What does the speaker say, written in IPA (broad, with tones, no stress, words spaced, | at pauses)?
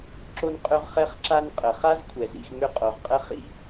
ǁo˦nqʼø˦ʁ χɛ˦χǁa˦nqʼə˩χa˥z kʷʰɛ˩zḭ˨x mʏ˦qʼo˩ʁqʼə˥χḭ˥